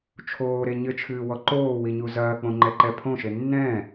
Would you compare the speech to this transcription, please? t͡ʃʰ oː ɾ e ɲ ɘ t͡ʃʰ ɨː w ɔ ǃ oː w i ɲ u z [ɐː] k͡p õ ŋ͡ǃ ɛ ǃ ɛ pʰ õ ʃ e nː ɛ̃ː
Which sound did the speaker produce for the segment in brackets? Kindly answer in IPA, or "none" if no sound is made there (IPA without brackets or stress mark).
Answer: ɐː